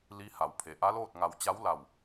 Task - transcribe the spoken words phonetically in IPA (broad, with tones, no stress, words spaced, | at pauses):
li˧˥ha˩˧w pʰe˩ʔa˧˥loː˥˨t̚ŋa˧˩w t͡ɕa˧˥wla˧˩w